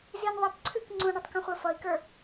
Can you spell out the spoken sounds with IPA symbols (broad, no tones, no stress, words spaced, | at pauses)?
zin ðˤɛp ǀʰɨk ŋ͡ǀũɳʌtˤkũχʷə˞ fʌi̯kə˞